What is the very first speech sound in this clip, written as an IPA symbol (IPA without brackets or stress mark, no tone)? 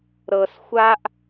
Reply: ɾ